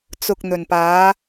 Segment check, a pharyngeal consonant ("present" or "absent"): absent